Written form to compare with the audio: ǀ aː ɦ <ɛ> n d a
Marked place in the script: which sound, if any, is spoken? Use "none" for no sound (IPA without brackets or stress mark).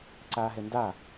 ɛ